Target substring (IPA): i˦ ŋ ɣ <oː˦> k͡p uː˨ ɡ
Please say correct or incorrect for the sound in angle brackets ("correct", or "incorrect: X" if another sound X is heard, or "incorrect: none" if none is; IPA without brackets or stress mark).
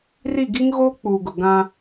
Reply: correct